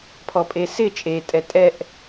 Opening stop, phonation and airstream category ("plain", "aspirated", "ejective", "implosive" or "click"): aspirated